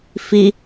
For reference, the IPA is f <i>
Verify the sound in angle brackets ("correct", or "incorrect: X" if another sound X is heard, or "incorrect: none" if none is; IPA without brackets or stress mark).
correct